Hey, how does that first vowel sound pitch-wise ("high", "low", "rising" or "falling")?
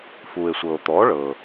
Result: low